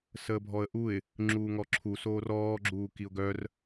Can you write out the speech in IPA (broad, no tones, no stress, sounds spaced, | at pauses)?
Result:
s əː bʱ ɔ ə̯ ʔ u ɪ̯ | ŋ͡ǁ uː ŋ ɔ ǁʰ u s oː r ɔː ɡ͡ǁ uː k i ʊ̯ ɡ œ r